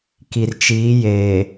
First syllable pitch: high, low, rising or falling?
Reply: low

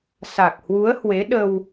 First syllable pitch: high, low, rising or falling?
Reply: low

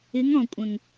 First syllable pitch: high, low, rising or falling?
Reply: rising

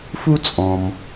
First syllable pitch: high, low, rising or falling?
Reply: high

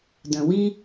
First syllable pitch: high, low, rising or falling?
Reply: low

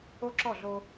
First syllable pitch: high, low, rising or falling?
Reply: high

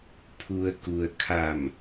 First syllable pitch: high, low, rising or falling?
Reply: low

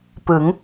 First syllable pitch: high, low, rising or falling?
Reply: rising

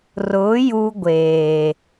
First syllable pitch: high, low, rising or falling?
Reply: rising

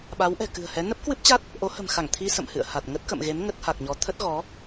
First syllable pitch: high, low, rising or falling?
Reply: rising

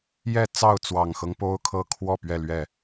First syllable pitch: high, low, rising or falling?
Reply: falling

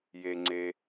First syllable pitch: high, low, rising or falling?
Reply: low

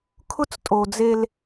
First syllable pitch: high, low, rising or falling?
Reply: high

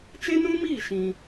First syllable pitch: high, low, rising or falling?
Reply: high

